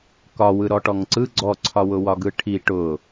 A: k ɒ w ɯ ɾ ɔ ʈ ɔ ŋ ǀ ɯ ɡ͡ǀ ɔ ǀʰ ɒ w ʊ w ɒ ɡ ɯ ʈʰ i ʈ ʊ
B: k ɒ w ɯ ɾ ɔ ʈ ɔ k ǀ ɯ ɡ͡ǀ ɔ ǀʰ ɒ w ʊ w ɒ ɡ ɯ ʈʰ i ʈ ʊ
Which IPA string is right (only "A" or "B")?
A